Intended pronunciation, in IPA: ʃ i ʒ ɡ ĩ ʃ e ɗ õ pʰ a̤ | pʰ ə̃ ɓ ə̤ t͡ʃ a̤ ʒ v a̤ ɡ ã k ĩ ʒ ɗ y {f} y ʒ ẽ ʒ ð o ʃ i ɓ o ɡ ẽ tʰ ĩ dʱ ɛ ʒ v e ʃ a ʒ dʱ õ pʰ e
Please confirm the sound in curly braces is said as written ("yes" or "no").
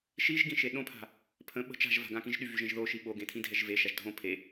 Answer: no